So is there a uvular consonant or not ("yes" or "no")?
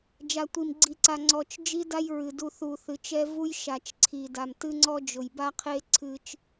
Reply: yes